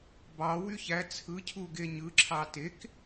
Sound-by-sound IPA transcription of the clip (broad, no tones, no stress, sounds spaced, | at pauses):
b ɑ w y ç æ t͡sʰ ɯ cʰ u ɡ e ɲ ɯ ǁʰ ɑ t e k